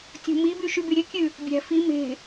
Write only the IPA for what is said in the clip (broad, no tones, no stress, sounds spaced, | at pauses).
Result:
tʲ o̤ m i b y ʃ y b y ɾʲ ʉ kʲ ʉ | bʲ æ̤ f i m e̤